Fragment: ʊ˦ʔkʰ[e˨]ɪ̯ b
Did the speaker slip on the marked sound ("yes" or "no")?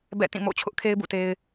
yes